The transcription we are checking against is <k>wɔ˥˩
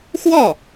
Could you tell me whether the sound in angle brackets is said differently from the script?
yes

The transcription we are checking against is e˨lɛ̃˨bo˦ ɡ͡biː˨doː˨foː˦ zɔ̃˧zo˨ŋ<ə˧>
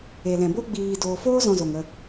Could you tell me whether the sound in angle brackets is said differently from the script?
no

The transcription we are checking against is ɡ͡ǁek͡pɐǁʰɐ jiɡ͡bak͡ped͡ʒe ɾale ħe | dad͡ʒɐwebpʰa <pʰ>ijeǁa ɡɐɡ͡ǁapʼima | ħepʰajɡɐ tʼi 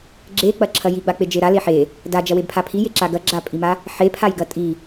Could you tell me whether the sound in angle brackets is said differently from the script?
no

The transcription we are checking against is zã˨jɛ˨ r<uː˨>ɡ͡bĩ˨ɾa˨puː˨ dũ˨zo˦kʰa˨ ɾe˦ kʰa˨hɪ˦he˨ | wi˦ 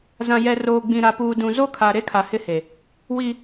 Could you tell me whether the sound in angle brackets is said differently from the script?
yes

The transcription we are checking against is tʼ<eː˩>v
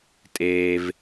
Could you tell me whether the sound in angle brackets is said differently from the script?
no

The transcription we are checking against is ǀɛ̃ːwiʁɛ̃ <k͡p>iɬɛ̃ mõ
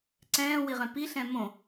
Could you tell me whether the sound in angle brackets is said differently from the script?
yes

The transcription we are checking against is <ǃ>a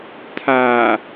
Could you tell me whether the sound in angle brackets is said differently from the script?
yes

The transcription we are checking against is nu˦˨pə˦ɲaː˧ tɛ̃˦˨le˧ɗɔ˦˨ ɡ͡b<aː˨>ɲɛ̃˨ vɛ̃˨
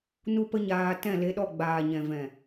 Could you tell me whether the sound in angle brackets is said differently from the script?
no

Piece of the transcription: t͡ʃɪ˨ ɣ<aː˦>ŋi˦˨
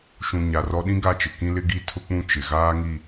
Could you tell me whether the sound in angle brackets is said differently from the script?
no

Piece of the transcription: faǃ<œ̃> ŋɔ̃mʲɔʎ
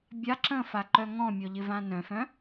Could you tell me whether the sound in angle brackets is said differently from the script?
yes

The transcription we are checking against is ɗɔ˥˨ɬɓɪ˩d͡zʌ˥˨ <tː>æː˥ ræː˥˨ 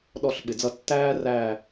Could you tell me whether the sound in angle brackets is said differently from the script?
no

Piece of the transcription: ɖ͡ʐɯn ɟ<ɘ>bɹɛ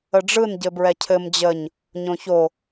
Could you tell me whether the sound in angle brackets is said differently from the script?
no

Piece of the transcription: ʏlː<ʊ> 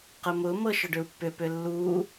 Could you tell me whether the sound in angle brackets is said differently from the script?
yes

